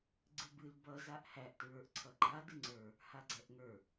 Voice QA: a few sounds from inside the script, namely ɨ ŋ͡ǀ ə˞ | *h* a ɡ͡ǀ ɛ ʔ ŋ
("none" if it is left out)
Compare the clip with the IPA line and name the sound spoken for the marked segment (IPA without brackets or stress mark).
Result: h